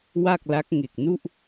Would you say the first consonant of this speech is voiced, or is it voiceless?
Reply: voiced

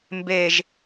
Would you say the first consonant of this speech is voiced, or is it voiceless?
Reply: voiced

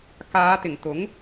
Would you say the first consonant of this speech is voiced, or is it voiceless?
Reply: voiceless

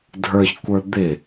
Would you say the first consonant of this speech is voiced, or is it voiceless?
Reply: voiced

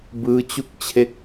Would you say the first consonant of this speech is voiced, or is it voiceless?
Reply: voiced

